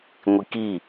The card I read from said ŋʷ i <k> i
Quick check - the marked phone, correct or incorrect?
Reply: correct